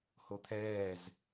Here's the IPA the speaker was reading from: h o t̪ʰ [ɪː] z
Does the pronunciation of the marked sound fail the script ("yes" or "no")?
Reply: yes